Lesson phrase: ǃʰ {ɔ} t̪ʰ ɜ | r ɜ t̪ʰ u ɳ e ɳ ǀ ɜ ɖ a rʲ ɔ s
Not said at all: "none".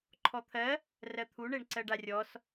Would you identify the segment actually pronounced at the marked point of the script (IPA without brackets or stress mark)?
ɔ